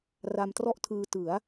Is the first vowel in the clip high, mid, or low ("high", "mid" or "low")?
low